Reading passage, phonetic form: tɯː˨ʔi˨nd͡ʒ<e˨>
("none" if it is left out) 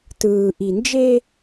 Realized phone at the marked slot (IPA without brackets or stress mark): e˦